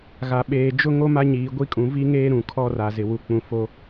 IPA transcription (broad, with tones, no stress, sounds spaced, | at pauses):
ɣ a˨ ɓ eː˨ d͡ʒ ʊ˦ ŋ o˦ m a˦ ɲ iː˨ ɡʷ i˦ kʼ ũ˨ v i˦ ŋ eː˦ ɾ ũ˨ kʰ ɔ˦ r a˨ z ɪ˨ w u˨ k͡p ũ˨ f o˦